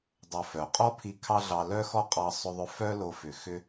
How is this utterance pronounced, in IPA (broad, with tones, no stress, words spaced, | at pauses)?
dˤo˧fœ˨ qʼɔ˦pʰi˧ kʰɑ˦ɮɑ˧ lœ˦xɔ˦ qʼɑ˧sˤʏ˧ðˤʏ˧ fœ˦ lo˦fʏ˨ xʏ˦